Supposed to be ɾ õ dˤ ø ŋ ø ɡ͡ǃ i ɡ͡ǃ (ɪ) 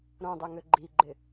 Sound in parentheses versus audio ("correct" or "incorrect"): correct